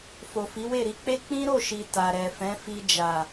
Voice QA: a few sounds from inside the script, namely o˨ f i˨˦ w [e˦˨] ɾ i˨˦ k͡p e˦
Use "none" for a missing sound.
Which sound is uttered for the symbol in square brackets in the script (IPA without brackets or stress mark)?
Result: e˦˨